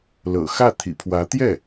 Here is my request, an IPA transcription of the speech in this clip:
l ɤ̰˨˩ x ä˥˩ t̪ʰ ḭ˨˩ pʰ w ä˧˥ t̪ j ɛ˥˩

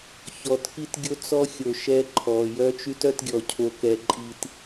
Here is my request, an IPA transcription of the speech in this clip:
ç ɔ˨ t k i˦ t ɡʲ o˦ t͡s ɔ˦ xʲ o˨ ʃ ɛ˦ ǃʰ ɔ˨ j œ˦ t͡ʃ y˦ t œ˦ t ɡʲ ɔ˨ cʰ o˦ k ɛ˦ ǃʼ i˦ t

